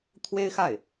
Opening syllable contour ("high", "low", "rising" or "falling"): high